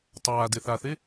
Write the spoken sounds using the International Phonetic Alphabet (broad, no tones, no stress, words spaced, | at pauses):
tˤaː deθaθe